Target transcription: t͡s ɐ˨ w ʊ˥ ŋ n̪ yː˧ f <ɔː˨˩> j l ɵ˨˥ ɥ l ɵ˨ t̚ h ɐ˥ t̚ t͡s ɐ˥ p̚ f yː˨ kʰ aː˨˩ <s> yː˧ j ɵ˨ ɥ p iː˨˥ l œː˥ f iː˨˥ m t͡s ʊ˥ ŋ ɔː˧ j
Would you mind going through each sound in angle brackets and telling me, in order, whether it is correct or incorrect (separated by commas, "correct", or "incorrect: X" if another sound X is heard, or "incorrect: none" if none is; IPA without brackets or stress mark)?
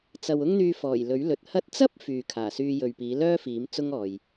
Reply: correct, correct